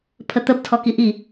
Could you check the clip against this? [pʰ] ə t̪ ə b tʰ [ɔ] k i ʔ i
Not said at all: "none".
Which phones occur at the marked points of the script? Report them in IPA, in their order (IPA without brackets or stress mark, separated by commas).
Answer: pʰ, ɔ